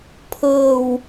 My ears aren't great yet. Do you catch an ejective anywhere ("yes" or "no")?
no